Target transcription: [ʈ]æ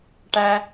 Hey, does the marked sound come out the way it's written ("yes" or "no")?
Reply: yes